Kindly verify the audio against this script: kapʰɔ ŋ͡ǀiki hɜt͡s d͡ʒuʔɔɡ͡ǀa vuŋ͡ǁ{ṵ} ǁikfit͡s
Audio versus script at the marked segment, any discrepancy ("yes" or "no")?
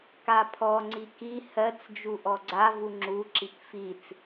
yes